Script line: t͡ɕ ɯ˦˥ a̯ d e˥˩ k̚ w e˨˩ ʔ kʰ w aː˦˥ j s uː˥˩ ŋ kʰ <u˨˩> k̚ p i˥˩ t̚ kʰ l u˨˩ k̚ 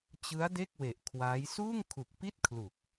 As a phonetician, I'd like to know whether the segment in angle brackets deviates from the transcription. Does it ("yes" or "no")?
no